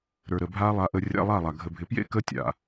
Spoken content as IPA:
ɾ ə˞˨ ɾ ə˨ bʱ aː˦ lˠ a˦ ʔ ə˦ rʲ a̰˦ lˠ a˦˨ lˠ a˨ ɡʱ ə˨ bʱ ɪ˨ p j ḛ˦ k əː˦ tʲ a̰˨

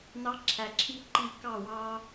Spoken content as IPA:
n ɑ˦ ǁʰ æ˧ ǁʰ i˦ ǃ i˦˨ k ɑ˦˨ w ɑ˦

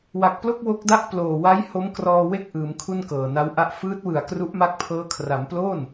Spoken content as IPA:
w a˨˩ k̚ p l o˥˩ k̚ w o˦˥ k̚ d a˥˩ ʔ p l oː˨˩ w a˦˥ j h o˦˥ m k r ɔː˧ w e˥˩ k̚ ʔ ɯː˩˦ m kʰ u˥˩ n k ɤː˨˩ n a˦˥ w ʔ a˥˩ ʔ f ɯː˦˥ t̚ w ɯ˨˩ a̯ k r u˦˥ ʔ m a˦˥ k̚ pʰ ɤː˦˥ kʰ r a˩˦ m p l o˥˩ n

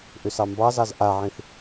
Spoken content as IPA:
ʔ ʏ s ɑ m b ɑ z ɑ z ʔ a ʕ ĩ θ

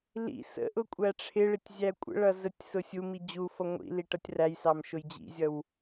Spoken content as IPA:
l ḭ s ə̰ ʔ ʊ kʷʼ æ ʈ͡ʂʰ ɪ ɭ ɪ tʲ zʲ æ kʷʼ ə̰ ɭ ʌ z ə tʲ s ʊ sʲ u m i d͡ʑ u f ʌ ŋʷ ḭ l i ʈ ʌ tʲ r æ j s ɑ m ʃ ʊ j d͡ʑ ḭ zʲ ʌ w

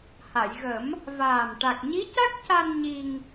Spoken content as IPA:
h a˨˩˨ j ɣ ə˨˩˦ m | v aː˨˩ m ʈ a˨˩ k̚ ɲ i˧˥ c a˦˥ k̚ c a˧ n ɲ i˧ ŋ

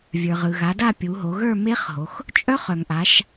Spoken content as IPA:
vʲ ə˞˩ ʁ ɯ˩ ɣ a˩˧ d a˥˧ pʲ u˩˧ ɦ o˩˧ ɣ ə˞˥˧ m e˦˥ χ ɦ o˩˧ x | t͡ʃʼ œ˦˥ χ œ˩ ŋ ʔ a˩˧ ʃ

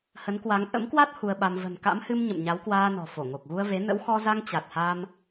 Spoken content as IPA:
h ə˨˦ n k w a˨˦ ŋ ʔ ə̰˧˥ m k w a˦˥ t̚ h u˧ ə̯ ɓ a˧ m v ə̤˨˩ n k a̰˧˥ m h ɨ˧ m ɲ ə̰˧˨ m ɲ a˨˦ w k w aː˧ n ɔ̤˨˩ f o˧˩ ŋ o˨˩ k̚ ɣ u˧ ə̯ v e˨˦ n ə̰˧˥ w x ɔ˧ z a˧ ŋ t͡ɕ a˨˩ t̚ h a˧ m

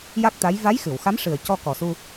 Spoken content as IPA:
j a˦˥ k̚ t̪ a˧˥ j v a˧˥ j x ɨ˨˩˨ w x a˧˥ m ʂ ɨ˨˩ ə̯ c ɔ˧ k ɔ˨˩ s u˧

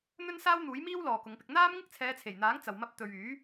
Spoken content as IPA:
n̪ ɵ˥ n s aː˥ w n̪ uː˨˥ j m iː˥ w l ɔː˨ k ʊ˨˧ ŋ p ɪ˧ k̚ n̪ aː˥ m ŋ ɪ˥ k̚ t͡sʰ ɛː˨˧ t͡sʰ e˨˩ j n̪ aː˨˥ ŋ t͡s ɐ˨ w m ɐ˥ p̚ t̪ ɵ˧ ɥ yː˨˥

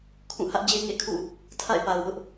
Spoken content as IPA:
kʰ ũ˦˨ h ä˦ ʔ d͡ʑ e˦ ŋ ḛ˦˨ kʰ ṵ˦˨ | tʰ a̰˦˨ ɪ̯ p a˨ ʊ̯ w ʊ˦ ʔ

